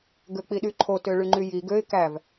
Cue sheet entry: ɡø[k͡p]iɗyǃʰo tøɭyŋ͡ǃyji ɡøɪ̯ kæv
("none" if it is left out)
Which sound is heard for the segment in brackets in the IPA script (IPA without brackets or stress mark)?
k͡p